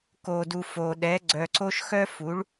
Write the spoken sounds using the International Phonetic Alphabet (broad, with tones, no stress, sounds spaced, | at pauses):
k o˩ d u˩ f o˩ ɗ ɛ˩˧ ɡ͡ǀ œ˩ ǀ o˧ ʃ x œ˧ f u˩˧ ɭ